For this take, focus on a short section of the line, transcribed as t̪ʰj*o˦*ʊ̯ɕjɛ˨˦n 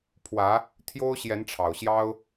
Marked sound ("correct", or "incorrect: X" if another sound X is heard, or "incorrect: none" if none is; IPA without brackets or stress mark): correct